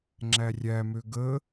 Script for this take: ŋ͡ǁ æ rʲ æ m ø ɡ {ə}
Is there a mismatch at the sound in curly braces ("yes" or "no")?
no